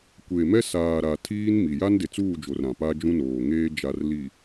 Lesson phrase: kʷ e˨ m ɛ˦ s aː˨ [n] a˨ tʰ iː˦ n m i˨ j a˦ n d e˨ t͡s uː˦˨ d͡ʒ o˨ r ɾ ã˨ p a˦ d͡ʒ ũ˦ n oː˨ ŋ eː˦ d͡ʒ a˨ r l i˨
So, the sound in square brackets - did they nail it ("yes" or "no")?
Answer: no